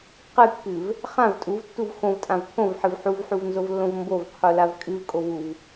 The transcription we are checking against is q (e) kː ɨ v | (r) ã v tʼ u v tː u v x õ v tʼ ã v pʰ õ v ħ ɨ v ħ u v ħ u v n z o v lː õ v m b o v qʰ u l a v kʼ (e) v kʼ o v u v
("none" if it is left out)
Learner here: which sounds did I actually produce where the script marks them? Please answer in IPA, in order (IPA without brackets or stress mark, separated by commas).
ɨ, χ, ɨ